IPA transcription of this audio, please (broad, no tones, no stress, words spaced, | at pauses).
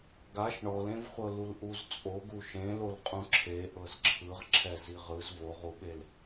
ɡaʃ ɳɔlẽvχʷɤ lulʔuzt͡sʼoɡu ʃẽlol qʼũǁʰe ʔɤzǁʰɯʁ ǁʰɛziʁɯz voʁuɓel